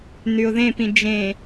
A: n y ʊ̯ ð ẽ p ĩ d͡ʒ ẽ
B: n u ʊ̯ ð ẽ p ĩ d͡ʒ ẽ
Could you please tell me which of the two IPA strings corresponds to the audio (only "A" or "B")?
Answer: A